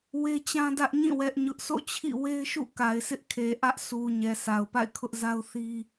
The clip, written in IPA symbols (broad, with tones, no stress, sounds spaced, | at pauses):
w e˦ t͡ɕ ã˦ d ä˦ ʔ ɲ ĩ˦˨ w ɛ˦ ʔ ɲ ʊ˦ ʔ sʰ o̰˦˨ t͡ɕʰ ḭ˦˨ w e˦ ɪ̯ ʃ ṵ˦˨ k a˨ ɪ̯ sʰ ɪ˦ ʔ kʰ e˨ ʔ ä˦ ʔ sʰ u˨ ɲ ɛ˨ s a˨ ʊ̯ p a̰˦˨ ɪ̯ kʰ ʊ˦ ʔ z a˦ ʊ̯ θ i˦